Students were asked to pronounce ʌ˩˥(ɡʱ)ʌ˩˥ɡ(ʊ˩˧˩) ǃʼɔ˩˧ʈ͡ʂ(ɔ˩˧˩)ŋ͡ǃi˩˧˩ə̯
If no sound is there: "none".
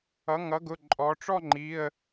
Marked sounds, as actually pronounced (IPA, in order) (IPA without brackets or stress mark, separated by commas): ŋ, ʊ˩˧˩, ɔ˥˧